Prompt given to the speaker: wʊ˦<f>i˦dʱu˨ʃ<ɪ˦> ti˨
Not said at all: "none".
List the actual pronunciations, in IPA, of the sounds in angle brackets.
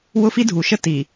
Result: f, ə˦

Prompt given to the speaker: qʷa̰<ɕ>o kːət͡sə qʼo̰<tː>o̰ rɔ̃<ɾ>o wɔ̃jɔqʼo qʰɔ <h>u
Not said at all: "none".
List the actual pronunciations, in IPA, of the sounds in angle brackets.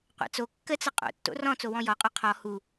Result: t͡s, tː, t͡s, h

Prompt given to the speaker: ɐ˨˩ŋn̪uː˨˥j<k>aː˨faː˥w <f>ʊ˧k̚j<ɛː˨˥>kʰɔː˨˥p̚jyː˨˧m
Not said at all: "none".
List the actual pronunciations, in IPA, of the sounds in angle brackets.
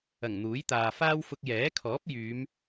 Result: t̪, f, ɛː˨˥

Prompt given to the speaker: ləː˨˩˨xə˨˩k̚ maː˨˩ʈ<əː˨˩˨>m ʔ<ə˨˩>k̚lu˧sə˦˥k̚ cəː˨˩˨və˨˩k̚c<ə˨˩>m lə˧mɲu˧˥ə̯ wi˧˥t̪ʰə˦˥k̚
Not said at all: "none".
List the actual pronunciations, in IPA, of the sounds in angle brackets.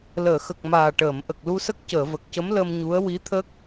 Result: əː˨˩˨, ə˨˩, ə˧˥

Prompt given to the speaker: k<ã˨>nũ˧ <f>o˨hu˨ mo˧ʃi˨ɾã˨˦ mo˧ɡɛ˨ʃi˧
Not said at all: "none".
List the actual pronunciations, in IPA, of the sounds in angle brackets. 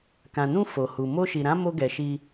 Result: ã˨, f

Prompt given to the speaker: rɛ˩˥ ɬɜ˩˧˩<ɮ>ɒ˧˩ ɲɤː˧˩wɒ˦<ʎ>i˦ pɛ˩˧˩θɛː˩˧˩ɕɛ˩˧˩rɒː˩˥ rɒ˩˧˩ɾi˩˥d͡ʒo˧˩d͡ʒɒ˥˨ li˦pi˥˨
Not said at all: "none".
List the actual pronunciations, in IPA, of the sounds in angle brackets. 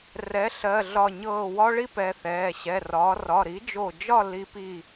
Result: ɮ, ɭ

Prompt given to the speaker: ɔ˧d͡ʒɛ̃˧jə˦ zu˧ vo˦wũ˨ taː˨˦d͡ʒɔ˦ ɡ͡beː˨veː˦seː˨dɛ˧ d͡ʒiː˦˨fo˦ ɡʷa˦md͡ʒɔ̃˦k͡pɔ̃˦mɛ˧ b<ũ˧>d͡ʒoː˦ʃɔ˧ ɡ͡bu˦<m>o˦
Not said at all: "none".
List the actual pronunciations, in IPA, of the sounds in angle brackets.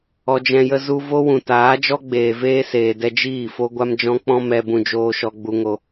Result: ũ˧, ŋ

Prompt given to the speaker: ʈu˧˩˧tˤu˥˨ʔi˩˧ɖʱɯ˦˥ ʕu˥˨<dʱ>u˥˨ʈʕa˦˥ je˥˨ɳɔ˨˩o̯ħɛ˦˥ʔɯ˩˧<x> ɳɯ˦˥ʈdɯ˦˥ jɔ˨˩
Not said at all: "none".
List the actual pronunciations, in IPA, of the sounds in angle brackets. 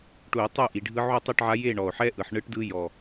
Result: tˤ, ħ

